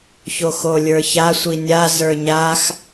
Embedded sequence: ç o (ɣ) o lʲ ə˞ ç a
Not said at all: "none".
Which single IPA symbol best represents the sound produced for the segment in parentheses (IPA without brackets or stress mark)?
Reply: x